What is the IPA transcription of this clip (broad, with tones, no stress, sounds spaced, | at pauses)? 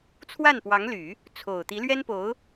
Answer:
t͡sʰ w a˥˩ n p w ɑ˧˥ ŋ l y˨˩˦ | t͡sʰ o˨˩ ʊ̯ t̪ i˧˥ l ɥ ɛ˥ n p o˧˥ ʊ̯